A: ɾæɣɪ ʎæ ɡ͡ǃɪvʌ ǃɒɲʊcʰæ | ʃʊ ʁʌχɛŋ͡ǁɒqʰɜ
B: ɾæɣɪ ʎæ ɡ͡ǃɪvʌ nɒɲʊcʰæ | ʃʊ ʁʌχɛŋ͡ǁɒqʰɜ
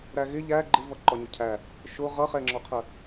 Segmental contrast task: A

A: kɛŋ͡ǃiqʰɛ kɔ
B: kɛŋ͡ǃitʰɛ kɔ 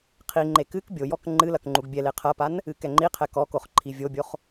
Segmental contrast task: A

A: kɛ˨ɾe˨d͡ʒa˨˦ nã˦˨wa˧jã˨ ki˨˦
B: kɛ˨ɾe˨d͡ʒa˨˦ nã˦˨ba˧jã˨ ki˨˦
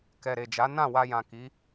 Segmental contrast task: A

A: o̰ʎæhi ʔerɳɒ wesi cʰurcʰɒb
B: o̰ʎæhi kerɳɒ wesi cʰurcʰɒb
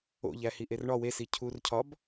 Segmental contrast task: A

